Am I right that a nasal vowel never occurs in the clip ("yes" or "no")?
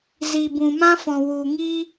no